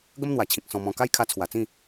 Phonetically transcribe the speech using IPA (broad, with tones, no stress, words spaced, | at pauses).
ɡə˦mn̪wa˨˩t͡ɕʰĩ˨k̚ sɔ̃˧mɔ̃˧ ka˦jkʰa˧t͡sʰwa˨˩t͡sĩ˥˧